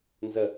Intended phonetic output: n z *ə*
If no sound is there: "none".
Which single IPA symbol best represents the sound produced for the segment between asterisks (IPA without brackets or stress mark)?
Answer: ə